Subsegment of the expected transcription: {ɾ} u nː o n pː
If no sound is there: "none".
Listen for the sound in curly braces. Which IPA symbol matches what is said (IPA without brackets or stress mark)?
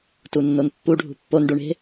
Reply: t